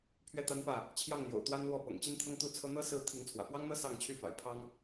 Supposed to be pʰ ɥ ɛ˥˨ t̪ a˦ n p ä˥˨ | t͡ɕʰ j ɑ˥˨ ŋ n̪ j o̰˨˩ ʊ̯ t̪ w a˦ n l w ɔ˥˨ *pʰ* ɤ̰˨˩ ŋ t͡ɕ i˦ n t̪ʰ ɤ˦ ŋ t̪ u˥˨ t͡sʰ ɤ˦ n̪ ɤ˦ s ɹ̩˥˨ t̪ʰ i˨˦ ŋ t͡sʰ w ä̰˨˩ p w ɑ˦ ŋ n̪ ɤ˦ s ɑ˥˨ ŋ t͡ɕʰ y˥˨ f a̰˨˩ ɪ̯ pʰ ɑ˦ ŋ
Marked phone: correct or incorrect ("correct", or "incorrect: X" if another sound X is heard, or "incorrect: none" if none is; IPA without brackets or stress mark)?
incorrect: p